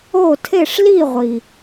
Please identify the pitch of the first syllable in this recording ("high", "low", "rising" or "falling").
falling